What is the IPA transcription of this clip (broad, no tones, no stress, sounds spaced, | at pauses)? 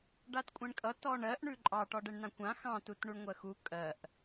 ɖ a t kʷʼ ɛ̃ ɳ kʼ ʌ t ɔ ɳ ɜ ʔ ɳ ʉ ǃʼ ɑ ʈ ɔ ɖ ɛ ɳ n ã kʷ ã x ɑ̃ t u t ɳ u ɳ ŋʷ ɜ x u kʼ ɜ ʔ